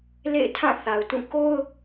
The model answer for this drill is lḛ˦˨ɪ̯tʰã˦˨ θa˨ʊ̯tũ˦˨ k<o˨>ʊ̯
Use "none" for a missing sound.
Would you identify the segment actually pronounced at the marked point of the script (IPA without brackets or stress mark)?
o˦